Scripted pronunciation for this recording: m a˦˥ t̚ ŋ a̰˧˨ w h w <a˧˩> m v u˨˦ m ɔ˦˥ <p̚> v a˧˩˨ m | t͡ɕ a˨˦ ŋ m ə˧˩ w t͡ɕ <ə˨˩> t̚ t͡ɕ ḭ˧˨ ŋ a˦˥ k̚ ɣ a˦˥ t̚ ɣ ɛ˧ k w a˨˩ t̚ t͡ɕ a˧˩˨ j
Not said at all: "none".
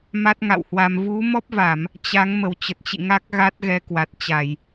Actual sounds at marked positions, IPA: a˧, p̚, ə˨˩

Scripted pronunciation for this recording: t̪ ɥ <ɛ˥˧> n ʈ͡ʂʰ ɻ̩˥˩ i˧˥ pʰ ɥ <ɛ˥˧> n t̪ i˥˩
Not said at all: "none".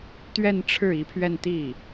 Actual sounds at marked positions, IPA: ɛ˥˧, ɛ˥˧

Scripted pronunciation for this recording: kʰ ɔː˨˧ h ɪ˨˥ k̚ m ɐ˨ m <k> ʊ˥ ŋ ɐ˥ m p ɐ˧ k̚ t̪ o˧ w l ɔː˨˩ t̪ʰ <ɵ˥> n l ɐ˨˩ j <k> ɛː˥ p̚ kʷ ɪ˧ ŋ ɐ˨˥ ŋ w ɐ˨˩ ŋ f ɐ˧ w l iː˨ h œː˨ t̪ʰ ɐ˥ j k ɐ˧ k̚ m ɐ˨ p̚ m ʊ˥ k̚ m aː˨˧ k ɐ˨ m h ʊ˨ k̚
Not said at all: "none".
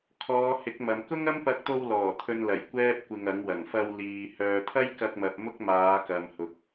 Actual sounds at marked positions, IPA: k, ɵ˧, kʷ

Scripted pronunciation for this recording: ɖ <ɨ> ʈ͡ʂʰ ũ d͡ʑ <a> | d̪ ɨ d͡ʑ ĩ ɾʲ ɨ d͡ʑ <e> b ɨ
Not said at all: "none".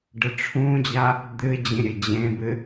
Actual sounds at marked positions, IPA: ɨ, a, ẽ

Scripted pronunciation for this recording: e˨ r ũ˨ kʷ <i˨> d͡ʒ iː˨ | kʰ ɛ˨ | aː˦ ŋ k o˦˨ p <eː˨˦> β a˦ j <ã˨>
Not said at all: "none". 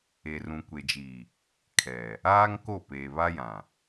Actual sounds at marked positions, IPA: e˨, eː˨, ã˨

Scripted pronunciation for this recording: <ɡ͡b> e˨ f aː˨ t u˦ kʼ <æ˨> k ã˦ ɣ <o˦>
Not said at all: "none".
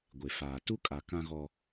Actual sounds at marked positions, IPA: ɡʷ, a˨, ɔ˦

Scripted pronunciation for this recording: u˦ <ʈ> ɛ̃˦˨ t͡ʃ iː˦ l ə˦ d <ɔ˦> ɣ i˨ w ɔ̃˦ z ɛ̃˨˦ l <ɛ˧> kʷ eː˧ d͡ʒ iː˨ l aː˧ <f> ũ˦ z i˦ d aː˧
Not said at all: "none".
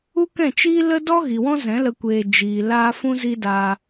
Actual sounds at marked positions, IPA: k, ɔ˦, ə˧, f

